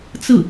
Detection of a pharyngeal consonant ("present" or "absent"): absent